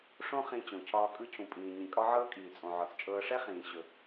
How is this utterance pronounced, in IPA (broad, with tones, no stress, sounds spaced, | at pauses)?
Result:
ʂ õ˥ χ ĩ˧ t͡ɕ õ˩ cʰ ɒː˧ kʼ ɯ˧ cʰ ũ˩ pʼ ĩː˩ ɲ ĩ˩ kʼ ɒ˥ ʕ ɤː˥ kʼ iː˩ t͡sʼ õ˩ ʕ ɒ˩ t͡s t͡ʃʼ ɤː˧ ʂ ɛ˥ χ ĩː˩ ɕ ɵ˩